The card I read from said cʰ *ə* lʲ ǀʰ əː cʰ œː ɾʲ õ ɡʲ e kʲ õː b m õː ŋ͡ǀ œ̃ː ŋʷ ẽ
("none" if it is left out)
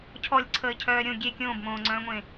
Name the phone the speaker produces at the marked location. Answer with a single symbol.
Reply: ɔ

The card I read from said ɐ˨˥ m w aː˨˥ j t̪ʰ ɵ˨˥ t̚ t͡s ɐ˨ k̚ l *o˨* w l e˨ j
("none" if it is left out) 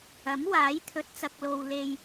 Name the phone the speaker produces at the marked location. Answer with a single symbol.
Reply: o˨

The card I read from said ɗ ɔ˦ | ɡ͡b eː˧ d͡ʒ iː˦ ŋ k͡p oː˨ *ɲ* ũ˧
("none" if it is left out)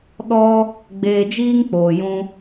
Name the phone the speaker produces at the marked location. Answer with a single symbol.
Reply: j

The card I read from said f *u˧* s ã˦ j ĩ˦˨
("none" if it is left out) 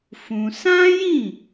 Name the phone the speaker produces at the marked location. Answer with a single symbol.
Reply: ũ˧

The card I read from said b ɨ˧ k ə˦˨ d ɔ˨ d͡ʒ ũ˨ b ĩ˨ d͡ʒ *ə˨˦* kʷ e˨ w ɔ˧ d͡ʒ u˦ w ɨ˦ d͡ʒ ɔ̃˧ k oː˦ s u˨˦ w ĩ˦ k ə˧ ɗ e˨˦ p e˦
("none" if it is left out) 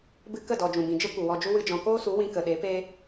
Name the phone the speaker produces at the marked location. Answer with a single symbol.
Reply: ə˦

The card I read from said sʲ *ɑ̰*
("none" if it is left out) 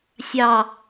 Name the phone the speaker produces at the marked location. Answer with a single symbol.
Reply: ɑ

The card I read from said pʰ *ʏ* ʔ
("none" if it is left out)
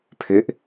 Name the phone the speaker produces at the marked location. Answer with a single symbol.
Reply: ʏ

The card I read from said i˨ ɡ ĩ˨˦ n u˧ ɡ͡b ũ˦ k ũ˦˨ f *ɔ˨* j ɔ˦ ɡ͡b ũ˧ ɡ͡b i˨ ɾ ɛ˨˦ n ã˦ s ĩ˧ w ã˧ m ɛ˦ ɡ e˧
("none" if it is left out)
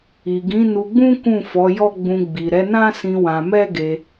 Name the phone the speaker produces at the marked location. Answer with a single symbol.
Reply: ɔ˨˦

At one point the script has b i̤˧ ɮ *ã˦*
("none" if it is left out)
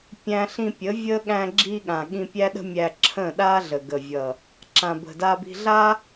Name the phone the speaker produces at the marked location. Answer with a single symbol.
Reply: a˦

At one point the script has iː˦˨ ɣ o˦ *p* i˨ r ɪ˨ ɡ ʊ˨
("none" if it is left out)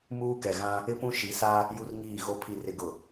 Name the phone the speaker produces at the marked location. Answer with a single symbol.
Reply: pʰ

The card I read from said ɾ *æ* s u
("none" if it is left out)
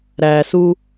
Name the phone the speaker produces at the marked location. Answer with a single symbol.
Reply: æ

